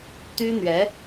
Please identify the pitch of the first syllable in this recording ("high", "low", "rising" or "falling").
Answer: high